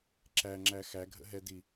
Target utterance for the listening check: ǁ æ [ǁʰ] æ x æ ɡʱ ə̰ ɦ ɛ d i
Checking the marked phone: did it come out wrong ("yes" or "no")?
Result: yes